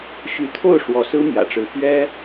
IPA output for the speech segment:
ɕ y˧˥ t̪ʰ o˥˩ ʊ̯ ʂ w ɔ˧˥ s ɹ̩˥ m j ä̰˨˩ ʈ͡ʂ ɻ̩˧˥ p ɥ ɛ˥

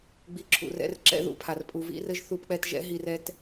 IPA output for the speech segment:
ɡ͡b i˧ ǁʰ ṵ˨ r ɛ̰˧ r ǁ ɛ̰˦ ð ṵ˧ pʰ a˨ r pʼ u˨ v ḭ˧ r ɘ˧ ʒ θ u˧ p k͡p ɛ˧ t ʒ ɛ̰˦ ɦ i˧ r ɛ˦ t

